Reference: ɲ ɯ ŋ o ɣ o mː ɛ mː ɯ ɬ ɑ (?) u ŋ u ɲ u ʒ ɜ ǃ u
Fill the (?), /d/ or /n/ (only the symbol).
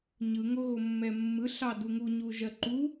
d